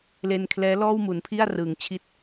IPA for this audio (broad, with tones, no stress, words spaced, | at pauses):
le˧n kʰlɛː˦˥lɔː˥˩w mu˩˦npʰi˥˩a̯ rɯː˩˦ŋt͡ɕʰi˥˩t̚